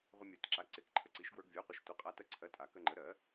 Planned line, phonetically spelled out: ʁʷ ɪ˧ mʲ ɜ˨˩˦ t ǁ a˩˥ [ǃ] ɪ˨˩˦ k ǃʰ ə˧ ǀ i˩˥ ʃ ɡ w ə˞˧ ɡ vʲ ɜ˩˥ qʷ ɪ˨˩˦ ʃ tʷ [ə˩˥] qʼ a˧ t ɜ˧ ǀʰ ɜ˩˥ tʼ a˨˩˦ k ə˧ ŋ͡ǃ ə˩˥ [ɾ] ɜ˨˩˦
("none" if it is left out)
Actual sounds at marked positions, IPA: ǀ, ə˩˥, ɾ

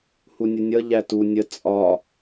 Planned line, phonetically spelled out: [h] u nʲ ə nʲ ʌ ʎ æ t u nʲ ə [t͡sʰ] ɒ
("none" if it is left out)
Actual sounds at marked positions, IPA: h, t͡sʼ

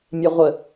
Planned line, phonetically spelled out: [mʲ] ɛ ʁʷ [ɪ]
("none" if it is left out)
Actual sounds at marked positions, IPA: mʲ, ə

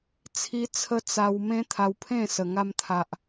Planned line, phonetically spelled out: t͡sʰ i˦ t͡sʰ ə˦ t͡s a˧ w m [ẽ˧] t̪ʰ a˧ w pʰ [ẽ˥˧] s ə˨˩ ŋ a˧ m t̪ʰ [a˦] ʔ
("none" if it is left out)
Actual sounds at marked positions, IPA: ẽ˦, ẽ˥˧, a˨

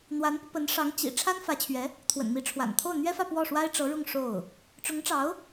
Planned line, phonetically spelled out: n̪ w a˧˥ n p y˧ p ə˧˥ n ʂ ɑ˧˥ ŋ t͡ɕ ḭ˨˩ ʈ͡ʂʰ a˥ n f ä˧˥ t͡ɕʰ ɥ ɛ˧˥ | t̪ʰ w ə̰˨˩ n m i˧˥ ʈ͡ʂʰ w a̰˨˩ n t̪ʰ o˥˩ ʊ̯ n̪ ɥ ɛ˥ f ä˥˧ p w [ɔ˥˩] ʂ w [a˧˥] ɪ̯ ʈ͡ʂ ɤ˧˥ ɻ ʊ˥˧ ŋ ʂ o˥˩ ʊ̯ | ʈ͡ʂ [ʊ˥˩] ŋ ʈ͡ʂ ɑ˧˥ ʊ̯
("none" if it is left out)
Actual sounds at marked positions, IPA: ɔ˥˩, a˥, ʊ˧˥

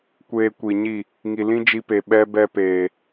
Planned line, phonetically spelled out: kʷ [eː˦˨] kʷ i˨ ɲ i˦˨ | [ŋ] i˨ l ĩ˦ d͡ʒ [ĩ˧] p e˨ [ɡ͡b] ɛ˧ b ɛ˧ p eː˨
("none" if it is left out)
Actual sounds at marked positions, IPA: eː˧, ŋ, i˧, ɓ

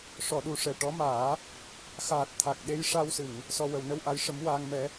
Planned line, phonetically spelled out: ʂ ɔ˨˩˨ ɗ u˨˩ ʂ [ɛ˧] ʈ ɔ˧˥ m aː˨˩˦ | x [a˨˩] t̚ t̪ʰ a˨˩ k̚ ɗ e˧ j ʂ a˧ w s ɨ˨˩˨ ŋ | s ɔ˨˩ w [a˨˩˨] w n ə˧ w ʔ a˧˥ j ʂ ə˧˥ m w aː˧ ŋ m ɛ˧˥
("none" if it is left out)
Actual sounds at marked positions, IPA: ɛ˨˩, aː˨˩, ə˨˩˨

